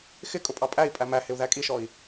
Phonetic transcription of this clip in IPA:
xɪ kʼʊpʼɑpʼæi̯ pʼæmæhɪu̯ ðækʼiʃɔi̯

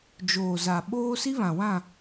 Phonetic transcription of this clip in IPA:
d͡ʒoː˨za˨ ɓoː˦ si˦βã˨wã˦˨

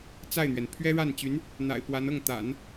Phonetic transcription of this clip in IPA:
t͡sa˥˩ɪ̯n̪ɥɛ˩n pʰɥɛ˥ɻa˥˩nt͡ɕy˧˥n | n̪a̰˨˩ɪ̯pwa˧˥n ɤ˥˩ŋt̪a̰˨˩˦n

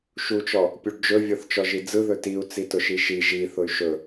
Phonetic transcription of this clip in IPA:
ʃut͡ʃɔ | pʲuɖd͡ʒɵ vʲɔθt͡ʃɔʒid͡zɯ ðɵtiu̯ t͡sitʊʃiʃi ʒi θʊy̯ʃɵ

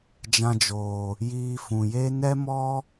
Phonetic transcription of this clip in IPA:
d͡ʒã˧d͡ʒoː˨ | jiː˧fũ˨ je˦ nɛ˦mɔ˦

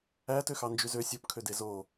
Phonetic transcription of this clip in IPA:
ætø xɑnd͡ʒyzø sʲopkʰøde zo

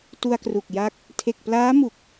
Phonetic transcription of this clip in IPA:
tu˧a̯kru˨˩k̚ja˦˥k̚ | tʰe˨˩k̚plaː˦˥mu˨˩k̚

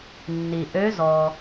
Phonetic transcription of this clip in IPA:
nːi˩ ʔø˧˥zɔ˩

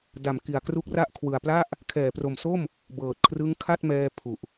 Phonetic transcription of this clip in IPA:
da˩˦mki˨˩a̯kru˦˥k̚ra˥˩ʔ kʰwɯ˨˩a̯pla˥˩ʔ | kʰɛː˩˦pro˨˩mso˥˩m | bɤː˨˩t̚kʰrɯ˦˥ŋkʰa˥˩t̚mɛː˧ pʰu˨˩ʔ

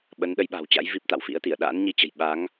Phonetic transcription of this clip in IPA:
ɓə˨˦nɗə˨˦jɓa̤˨˩wt͡ɕa̰˧˥j vi˦˥p̚t̪a̰˧˨wfḭ˧˥ə̯t̪i˧˩ə̯ ɗa̰ː˧˥nɲi˧t͡ɕə̤˨˩j ɓa˨˦ŋ

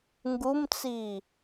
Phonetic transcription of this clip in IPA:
ŋɡumt͡si

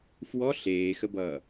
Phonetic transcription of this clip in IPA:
fwɔ ɬeːxəbʌː

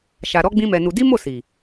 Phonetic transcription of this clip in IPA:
ʃa˧ ɾɔ˦ɡ͡bĩ˦mɛ˧nu˧ di˦mo˦˨ si˨

